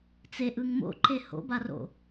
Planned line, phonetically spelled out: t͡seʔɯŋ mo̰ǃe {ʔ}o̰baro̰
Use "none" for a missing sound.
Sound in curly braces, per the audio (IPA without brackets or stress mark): h